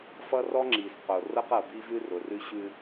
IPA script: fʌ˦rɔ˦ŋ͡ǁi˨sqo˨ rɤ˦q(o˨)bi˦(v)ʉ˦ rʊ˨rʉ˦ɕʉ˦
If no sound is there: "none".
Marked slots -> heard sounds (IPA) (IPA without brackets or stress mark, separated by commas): ɤ˨, v